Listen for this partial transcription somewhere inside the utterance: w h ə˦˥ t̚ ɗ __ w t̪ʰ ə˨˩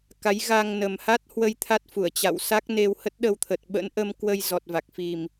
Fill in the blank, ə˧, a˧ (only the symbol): ə˧